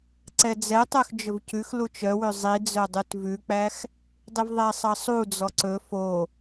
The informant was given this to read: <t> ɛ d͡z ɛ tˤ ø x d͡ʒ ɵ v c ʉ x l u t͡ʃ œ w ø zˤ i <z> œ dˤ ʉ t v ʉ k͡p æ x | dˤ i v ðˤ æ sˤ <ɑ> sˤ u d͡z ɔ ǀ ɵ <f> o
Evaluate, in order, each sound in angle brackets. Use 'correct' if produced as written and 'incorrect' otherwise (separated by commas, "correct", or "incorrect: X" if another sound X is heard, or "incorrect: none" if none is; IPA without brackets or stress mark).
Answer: incorrect: ǀ, incorrect: d͡z, correct, correct